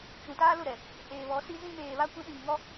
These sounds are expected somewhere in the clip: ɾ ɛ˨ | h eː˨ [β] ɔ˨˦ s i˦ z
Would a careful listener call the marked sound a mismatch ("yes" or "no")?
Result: no